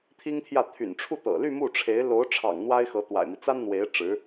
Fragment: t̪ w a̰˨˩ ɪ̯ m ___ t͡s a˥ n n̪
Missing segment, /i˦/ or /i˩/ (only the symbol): i˦